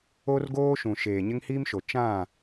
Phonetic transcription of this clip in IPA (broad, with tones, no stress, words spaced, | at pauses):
o˦rɡoː˦ ʃũ˨ʃeː˨ɲɪ˦ŋhiː˦m ʃo˨ t͡ʃã˦˨